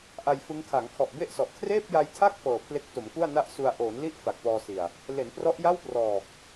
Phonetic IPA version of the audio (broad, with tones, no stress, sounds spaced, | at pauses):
ʔ a˧ j f ɯ˦˥ ŋ kʰ a˩˦ ŋ kʰ ɔ˨˩ ʔ b e˥˩ ʔ s ɔ˨˩ ʔ kʰ r eː˥˩ p̚ j a˧ j tʰ a˥˩ k̚ f ɤː˨˩ pʰ l e˦˥ k̚ t o˩˦ m k u˥˩ a̯ n a˥˩ ʔ s u˧ a̯ ʔ oː˩˦ n l i˥˩ ʔ f a˨˩ k̚ p ɔː˧ s i˨˩ a̯ | l e˩˦ n p r ɔ˦˥ ʔ j a˥˩ w p r ɔː˨˩ k̚